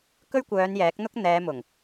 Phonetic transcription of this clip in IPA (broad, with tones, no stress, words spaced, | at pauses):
kɵ˥ɥkʷœː˨˧n jɛː˨˥k̚n̪ʊ˥k̚ n̪ɛː˨˧mʊ˨˩ŋ